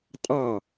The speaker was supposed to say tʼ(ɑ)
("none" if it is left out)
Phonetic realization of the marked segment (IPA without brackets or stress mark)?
ɑ